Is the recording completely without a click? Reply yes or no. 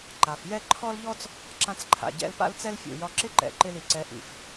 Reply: no